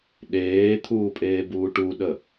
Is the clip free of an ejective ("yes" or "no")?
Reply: no